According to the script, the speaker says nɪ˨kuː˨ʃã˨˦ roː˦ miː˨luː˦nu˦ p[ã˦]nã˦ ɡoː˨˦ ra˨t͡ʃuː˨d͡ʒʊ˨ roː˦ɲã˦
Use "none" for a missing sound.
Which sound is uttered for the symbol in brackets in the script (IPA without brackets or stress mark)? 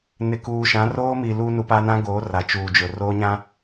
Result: a˦